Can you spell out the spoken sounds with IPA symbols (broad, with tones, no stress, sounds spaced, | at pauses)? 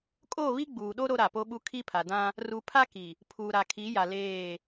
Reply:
kʼ o˦˨ β i˦ ɡ͡b uː˨ ɗ o˦ ɾ o˦ ɾ a˨ p o˦ ɓ u˦ kʰ i˦ pʰ a˨ d ã˦ | r u˨ pʰ a˦ k i˨ | pʰ uː˨ ɾ a˨ kʰ i˨˦ j a˨ l eː˦˨